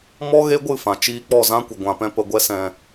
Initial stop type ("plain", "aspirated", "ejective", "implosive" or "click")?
plain